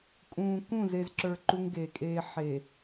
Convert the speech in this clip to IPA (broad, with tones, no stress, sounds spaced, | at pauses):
kʼ ũː˨ k ũ˦˨ z e˨ z ǁ ə˞˨ ǃ u˦ ŋ ɡ e˨ kʼ eː˦ ħ e˨